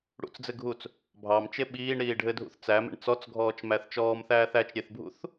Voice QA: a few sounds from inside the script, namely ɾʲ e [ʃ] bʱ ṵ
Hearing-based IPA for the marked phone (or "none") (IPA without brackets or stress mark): θ